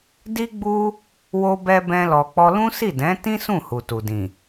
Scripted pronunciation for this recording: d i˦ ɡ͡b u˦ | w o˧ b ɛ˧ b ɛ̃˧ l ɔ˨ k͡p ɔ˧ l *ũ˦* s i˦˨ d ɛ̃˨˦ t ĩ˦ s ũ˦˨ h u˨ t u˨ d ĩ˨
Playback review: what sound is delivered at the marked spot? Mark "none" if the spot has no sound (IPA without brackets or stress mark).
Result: ũ˦